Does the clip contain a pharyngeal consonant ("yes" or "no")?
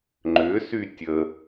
no